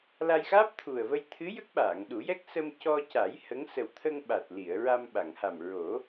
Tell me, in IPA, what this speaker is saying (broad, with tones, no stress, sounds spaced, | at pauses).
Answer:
l a˧ j x aː˦˥ p̚ t̪ʰ u˨˩ ə̯ v ə˧ j t̪ʰ ɨ˧˥ j ə˦˥ k̚ ɓ aː˨˩˨ ŋ ɗ u˨˩˦ j ɛ˦˥ k̚ s ə˧ m c ɔ˧ c a˨˩˦ j h ə˧˥ ŋ s ə˨˩ w t̪ʰ ə˧ ŋ ɓ a˨˩ t̚ l i˨˩˨ ə̯ ɹ a˧ m ɓ a˨˩˨ ŋ h a˨˩ m ɹ o˨˩˦